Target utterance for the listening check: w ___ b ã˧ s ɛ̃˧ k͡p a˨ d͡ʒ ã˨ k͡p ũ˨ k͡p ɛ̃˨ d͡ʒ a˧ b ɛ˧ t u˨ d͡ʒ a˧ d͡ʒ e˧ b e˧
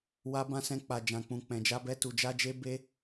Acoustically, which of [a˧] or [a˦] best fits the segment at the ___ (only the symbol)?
a˧